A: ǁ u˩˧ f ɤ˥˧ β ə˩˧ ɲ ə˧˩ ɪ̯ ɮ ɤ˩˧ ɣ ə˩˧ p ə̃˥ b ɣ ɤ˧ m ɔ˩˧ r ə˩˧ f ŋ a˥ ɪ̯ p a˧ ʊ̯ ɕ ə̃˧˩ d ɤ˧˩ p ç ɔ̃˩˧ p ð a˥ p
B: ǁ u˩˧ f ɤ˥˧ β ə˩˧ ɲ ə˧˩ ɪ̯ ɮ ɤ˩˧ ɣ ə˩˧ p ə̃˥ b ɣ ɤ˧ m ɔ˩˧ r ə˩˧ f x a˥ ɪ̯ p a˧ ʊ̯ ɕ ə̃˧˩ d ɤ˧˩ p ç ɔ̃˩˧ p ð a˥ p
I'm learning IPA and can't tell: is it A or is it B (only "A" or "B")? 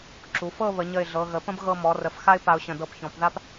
B